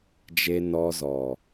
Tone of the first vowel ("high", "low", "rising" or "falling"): low